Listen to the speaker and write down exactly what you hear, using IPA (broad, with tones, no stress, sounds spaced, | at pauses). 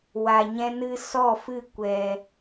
w a˧ ɲ ɛ̃˦ n ɨ˦ s ɔ˦˨ f ɨ˦˨ kʷ ɛ˧